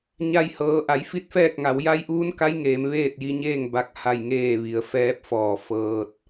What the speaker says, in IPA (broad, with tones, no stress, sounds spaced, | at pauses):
ɲ a˧ j h ɤː˩˧ ʔ a˩˧ j f i˥˨ t̚ f ɛː˥˨ k̚ ŋ a˩˧ w j a˧˥ j ʔ uː˧˥ n k a˧˥ j ŋ eː˧˥ m ʋ eː˥˨ t̚ j i˧ ɲ eː˥˨ ŋ b a˥˨ k̚ h a˥˨ j ŋ eː˥˨ ʋ i˩ ə̯ f ɛː˧˥ p̚ f ɔː˧˩ f ɤː˧ t̚